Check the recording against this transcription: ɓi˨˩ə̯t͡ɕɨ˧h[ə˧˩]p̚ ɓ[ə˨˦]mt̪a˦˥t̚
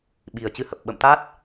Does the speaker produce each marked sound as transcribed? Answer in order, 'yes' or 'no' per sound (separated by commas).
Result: no, no